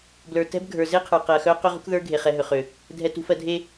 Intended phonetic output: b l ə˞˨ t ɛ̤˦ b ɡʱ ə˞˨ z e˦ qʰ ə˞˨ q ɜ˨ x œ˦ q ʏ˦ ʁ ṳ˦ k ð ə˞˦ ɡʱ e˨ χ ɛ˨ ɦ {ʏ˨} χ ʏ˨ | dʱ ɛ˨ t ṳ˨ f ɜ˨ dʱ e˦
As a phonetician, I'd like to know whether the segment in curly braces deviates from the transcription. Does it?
no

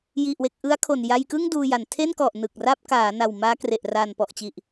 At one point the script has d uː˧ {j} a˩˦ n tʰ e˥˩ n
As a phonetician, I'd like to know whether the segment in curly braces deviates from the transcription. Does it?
no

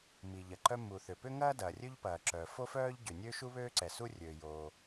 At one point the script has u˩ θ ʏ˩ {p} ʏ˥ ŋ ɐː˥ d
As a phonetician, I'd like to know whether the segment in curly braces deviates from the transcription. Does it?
no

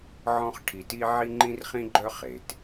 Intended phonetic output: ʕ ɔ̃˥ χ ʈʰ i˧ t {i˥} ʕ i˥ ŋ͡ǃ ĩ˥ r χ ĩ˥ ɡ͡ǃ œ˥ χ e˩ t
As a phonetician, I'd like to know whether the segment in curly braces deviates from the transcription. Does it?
no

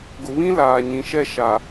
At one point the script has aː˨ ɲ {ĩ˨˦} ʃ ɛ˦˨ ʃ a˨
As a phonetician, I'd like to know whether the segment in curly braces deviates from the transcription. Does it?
no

